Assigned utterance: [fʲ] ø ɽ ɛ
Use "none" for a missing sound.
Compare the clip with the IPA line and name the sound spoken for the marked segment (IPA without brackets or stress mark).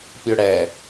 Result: pʲ